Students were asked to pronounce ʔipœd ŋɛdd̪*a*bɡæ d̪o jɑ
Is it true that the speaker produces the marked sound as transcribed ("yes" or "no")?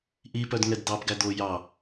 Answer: no